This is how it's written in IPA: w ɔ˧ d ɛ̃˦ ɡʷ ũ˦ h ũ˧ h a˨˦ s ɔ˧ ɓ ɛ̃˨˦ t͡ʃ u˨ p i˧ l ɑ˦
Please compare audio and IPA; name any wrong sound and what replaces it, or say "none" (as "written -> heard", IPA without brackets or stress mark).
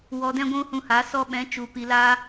ɑ˦ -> a˦